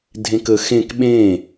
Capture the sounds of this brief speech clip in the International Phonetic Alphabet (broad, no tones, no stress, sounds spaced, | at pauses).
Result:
dʱ ẽ k ə x ẽ k ɓ ẽ